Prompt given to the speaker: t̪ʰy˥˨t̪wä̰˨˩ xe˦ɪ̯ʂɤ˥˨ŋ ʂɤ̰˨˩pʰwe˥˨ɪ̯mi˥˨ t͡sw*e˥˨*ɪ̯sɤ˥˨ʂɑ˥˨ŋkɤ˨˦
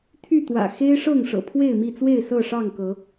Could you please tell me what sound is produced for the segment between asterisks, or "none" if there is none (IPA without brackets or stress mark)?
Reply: e˥˨